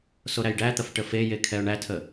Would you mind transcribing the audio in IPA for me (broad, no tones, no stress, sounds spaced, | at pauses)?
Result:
s o ɾ æ j ɖ æ t̪ ɐ f ʈ ə f e j e kʰ ɛ ʊ̯ ɳ æ tʰ ə